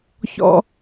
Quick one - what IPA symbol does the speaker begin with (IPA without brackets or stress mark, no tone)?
ç